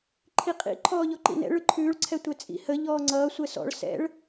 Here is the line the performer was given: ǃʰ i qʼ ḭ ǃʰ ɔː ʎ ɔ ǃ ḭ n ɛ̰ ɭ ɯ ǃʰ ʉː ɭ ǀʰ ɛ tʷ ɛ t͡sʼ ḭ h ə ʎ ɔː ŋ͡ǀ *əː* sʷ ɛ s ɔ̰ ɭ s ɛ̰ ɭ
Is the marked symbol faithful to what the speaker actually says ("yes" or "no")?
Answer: no